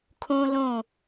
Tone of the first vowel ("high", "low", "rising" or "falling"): high